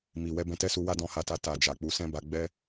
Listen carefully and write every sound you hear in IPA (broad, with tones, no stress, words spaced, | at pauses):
mi˨ wɛ˧bɛ̃˧tɛ˦su˧ wa˦dɔ̃˧ha˧ta˧ ta˨ d͡ʒa˨k͡pu˨˦sɛ̃˦ba˧ ɡ͡bɛ˦